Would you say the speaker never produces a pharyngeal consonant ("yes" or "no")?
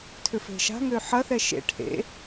no